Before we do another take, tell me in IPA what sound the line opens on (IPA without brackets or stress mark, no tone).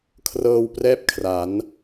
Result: kʰ